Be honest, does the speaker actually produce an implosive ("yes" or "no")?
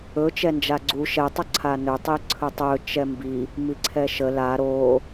no